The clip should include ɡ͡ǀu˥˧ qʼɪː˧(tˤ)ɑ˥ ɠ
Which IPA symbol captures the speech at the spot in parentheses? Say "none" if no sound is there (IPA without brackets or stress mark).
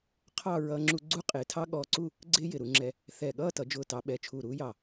tʰ